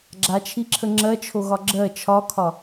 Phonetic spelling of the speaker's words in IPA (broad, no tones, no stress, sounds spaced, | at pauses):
ɡ͡ǁ a t͡ʃʰ i ǁʰ ə ŋ͡ǁ ɜ t͡ʃʰ o ɣ ɒ ɡ͡ǁ ɜ t͡ʃʰ ɒ kʰ ɒ